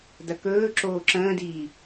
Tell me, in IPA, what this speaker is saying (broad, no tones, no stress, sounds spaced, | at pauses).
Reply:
d ɐ k ɵː ǁ oː ǁ ə̃ː d iː